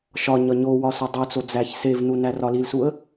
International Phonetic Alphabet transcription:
ʃ ɒ ɲ ɒ ɲ o w ɒ s o dˤ u t͡s o d͡z æ ç s e v n u n æ r ɒ l i l s u ə̯

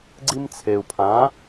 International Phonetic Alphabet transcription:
ɡ͡ǀ i˦ m t͡sʰ e˨ u̯ pʰ ã˨˥

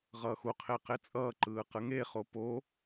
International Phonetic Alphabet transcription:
ʁ ʌː x u qʰ e q e t͡sʼ ʌː ǃ ɯː q ɯ ŋ e χ o p o

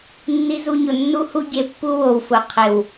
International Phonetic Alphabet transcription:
nː i˧ z u˧ ɲ ʊ˨ nː u˦ h u˦ ɟ e˧ pː u˦ w o˨ w f ʊ˨ qʰ ɪ˨ w

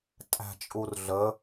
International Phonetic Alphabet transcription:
tʼ æ̤ t͡ʃʼ u r ɮ ə

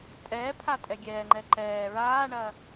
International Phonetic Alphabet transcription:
tʼ ɛː pʰ a tʼ ɛ ɡʲ ɛː ŋ͡ǃ ɛ ǃ ɛː ɹ aː ɳ ɐ

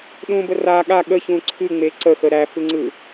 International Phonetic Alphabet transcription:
ɗ ũ b ə r a ɠ a ɠ ə ç ũ ǀʰ ɨ ŋ͡m e ǀ ə x ə ɾ æ f ɯ ŋ͡ǀ ɯ

